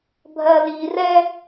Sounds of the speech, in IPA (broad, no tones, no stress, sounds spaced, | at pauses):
bʱ ɜ l i r ɛ